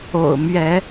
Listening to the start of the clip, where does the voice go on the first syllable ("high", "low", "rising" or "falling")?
low